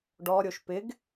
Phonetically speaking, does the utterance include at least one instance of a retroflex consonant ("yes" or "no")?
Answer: yes